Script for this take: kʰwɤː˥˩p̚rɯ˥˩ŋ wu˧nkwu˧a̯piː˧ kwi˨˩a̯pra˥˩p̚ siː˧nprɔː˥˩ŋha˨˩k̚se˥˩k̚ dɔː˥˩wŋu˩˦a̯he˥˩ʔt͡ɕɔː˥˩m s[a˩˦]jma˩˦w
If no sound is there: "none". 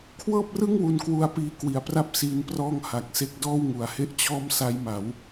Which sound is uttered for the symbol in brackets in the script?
a˦˥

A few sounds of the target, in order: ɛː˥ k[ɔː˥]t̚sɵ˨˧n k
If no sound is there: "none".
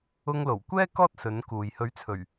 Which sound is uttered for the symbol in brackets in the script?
ɔː˥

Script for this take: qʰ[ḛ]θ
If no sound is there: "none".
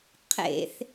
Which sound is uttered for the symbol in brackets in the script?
ḛ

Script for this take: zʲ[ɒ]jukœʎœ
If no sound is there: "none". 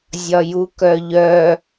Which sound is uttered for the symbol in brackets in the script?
ɒ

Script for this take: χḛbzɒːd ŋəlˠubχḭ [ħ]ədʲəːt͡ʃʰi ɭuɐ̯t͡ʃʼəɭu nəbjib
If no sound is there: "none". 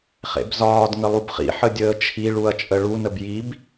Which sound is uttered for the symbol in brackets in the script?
ħ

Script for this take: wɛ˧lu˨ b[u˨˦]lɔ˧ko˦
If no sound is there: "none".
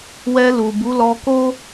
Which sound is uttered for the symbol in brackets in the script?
u˨˦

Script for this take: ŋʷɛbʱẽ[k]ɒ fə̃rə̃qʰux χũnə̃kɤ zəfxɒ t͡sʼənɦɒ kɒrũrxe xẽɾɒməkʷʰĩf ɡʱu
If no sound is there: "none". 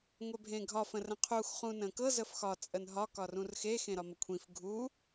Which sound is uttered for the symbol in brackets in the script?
ɡʱ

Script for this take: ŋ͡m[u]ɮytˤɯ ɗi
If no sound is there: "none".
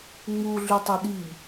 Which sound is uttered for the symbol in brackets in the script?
u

